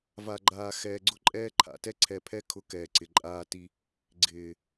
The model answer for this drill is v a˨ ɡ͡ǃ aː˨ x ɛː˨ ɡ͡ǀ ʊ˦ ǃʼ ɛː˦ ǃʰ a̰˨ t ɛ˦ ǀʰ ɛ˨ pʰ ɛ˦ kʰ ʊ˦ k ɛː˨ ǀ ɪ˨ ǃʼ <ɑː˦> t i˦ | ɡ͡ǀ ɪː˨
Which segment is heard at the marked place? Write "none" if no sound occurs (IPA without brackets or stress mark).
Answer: aː˦